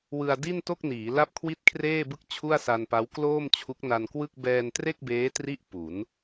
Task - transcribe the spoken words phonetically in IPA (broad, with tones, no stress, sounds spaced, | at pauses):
w ɯ˧ a̯ d i˥˩ n t o˥˩ k̚ n iː˩˦ l a˥˩ p̚ kʰ w i˥˩ t̚ kʰ r eː˥˩ b ɯ˥˩ k̚ t͡ɕʰ u˥˩ a̯ s a˧ n p a˦˥ w k l oː˥˩ m t͡ɕʰ u˦˥ k̚ n a˧ n k w ɯ˥˩ k̚ b ɛː˧ n t r e˥˩ k̚ b eː˦˥ t r i˦˥ ʔ p u˩˦ n